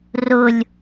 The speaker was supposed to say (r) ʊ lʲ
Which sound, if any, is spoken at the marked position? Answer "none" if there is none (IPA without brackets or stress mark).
r